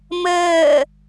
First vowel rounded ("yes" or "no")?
no